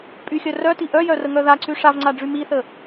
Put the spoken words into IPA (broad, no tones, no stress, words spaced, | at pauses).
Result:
pʼyxʲœ rœti ʔœjœrəŋœ ðaǀy ʂavŋ͡ǀaɖ͡ʐy miθə